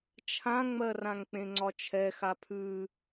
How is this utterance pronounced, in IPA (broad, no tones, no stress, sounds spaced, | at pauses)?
t͡ʃʰ ã ŋ͡m ɜ r ã ŋ k͡p ẽ ŋ͡ǀ ɒ t͡ʃʰ ɛ x a pʰ ʉ